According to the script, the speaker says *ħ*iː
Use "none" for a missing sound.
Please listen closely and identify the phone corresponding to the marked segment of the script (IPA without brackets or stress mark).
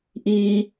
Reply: ʔ